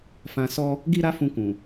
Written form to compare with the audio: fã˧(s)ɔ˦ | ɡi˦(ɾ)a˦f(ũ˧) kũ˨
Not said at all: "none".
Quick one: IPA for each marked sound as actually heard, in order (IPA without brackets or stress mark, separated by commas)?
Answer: s, ɾ, ũ˧